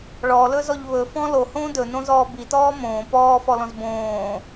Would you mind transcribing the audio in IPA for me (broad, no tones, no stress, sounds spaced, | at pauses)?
ɭ ɔ l ɵ z ɔ ʎ β ɵ f ɔ̃ l o h õː d ɵ n õ z ɔː b i t ɔː m õː p ɔː f ɔ l ɔ̃ z b õː